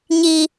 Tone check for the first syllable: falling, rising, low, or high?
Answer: high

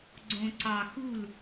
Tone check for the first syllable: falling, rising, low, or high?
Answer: low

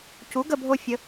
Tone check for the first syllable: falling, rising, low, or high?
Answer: rising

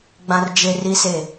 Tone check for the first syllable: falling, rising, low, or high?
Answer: high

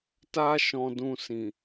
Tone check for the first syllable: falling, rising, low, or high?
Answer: high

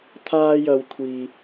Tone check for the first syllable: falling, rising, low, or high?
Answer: high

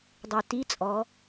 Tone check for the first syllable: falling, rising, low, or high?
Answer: low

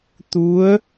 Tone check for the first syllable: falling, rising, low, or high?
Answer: rising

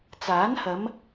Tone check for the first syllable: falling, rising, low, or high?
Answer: rising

